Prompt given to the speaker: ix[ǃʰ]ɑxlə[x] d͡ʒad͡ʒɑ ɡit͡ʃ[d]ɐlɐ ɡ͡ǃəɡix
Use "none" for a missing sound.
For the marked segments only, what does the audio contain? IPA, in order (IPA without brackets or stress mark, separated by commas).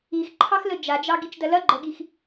ǃʰ, none, d